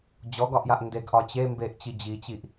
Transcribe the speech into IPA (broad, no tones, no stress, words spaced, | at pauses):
d͡ʑɔɡɒʔjaʔ ndeɡʔɒ t͡ɕe mbeʔt͡ɕi d͡ʑit͡ɕiʔ